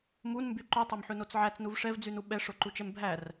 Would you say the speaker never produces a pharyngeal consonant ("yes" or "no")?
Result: no